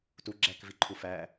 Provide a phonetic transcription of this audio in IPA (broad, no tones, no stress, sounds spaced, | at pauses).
t u ɡ͡ǁ æ k v i ǃʰ u f æ